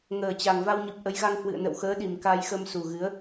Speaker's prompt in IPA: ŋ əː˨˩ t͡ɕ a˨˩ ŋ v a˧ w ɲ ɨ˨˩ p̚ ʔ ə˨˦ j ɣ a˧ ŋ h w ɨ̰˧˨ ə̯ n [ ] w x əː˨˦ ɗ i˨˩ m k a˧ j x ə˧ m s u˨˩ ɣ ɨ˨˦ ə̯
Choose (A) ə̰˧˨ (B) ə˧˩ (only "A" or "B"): A